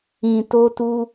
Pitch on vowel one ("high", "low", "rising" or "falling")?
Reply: low